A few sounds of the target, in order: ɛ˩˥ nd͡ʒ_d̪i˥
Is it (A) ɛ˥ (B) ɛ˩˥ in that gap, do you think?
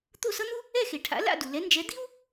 B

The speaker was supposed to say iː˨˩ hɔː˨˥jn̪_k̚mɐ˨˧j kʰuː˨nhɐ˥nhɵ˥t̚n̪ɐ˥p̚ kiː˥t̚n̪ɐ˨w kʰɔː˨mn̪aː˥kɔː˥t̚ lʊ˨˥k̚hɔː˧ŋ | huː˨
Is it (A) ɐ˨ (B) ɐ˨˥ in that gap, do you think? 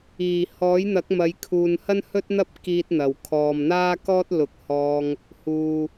B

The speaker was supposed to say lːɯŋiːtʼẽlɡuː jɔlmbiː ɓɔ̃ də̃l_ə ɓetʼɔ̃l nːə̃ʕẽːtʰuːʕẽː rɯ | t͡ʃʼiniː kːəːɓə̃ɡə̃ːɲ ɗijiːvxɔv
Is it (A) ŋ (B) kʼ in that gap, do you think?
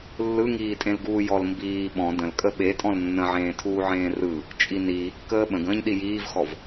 B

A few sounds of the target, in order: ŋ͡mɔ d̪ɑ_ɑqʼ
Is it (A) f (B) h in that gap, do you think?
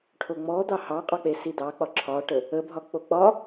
B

